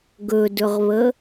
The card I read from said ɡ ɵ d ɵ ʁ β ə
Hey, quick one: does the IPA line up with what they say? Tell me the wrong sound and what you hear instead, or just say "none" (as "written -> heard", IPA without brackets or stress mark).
none